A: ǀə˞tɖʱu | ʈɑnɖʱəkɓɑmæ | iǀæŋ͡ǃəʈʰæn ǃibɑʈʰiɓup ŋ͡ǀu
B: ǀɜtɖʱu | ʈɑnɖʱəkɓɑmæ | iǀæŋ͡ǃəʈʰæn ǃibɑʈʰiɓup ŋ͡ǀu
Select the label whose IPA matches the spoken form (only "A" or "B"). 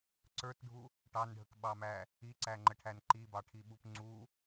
A